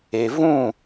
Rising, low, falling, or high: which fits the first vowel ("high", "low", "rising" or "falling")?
low